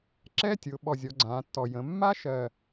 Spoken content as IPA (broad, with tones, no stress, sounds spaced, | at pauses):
ǁ ɛ˦˥ tʲ ʊ˩˧ ɓ ɔ˨˩ zʲ ɔ˩˧ ɡ͡ǀ ãː˩˧ tː ɔ˨˩ j ə̃˩˧ mː a˦˥ ʃ ɜ˨˩